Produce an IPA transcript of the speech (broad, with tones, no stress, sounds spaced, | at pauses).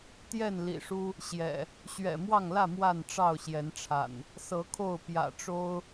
t̪ j ɛ˥˨ n l ḭ˨˩ ʂ u˦ | ɕ j ɛ̰˨˩ | ɕ ɥ ɛ̰˨˩ m w ɑ˥˨ ŋ l ä˥˨ m w a˥˨ n ʈ͡ʂ ɑ˥˨ ʊ̯ ɕ j ɛ˨˦ n ʈ͡ʂʰ a̰˨˩ n | s ɤ˨˦ kʰ o˥˨ ʊ̯ p j ä̰˨˩ ʈ͡ʂ o˦ ʊ̯